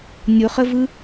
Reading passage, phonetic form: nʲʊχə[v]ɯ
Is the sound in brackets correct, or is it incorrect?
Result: correct